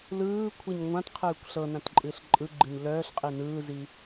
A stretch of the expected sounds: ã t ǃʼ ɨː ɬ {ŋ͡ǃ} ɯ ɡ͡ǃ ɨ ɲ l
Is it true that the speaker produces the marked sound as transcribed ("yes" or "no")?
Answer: no